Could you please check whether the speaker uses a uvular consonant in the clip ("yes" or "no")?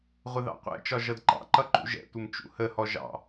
yes